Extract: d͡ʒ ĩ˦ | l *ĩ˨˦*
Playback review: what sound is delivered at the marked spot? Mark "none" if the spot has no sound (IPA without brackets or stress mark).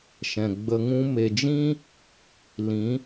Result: ĩ˨˦